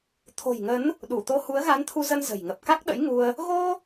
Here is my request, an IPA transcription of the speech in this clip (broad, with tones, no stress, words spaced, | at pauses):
t̪ʰo̤˨˩jŋə˨˦n | ɗu˧˩t̪o˧hu˨˦ə̯ ɣa˨˦nt̪ʰu˧zə˧n zə̤˨˩j ŋə˨˩p̚ka˦˥k̚ ɗə̰˧˥jŋu˧ə̯ | ɣo˧